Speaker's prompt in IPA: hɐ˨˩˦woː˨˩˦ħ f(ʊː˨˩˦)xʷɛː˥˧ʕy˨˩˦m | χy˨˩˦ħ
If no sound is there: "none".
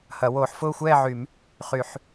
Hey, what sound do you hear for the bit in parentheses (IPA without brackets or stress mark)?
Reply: ʊː˥˧